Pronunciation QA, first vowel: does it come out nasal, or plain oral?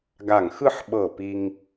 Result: oral